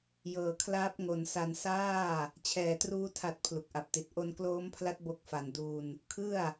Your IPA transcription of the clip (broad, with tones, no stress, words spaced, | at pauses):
jɤː˩˦kʰlaː˦˥p̚ ŋo˨˩nsa˧n saː˥˩ | t͡ɕʰɛː˨˩truː˦˥ tʰa˨˩t̚ pʰlu˨˩k̚ʔa˨˩p̚ti˨˩t̚ ʔo˧nkloː˦˥mpʰla˦˥t̚ bo˦˥k̚fa˨˩nduː˧n | kʰɯ˥˩a̯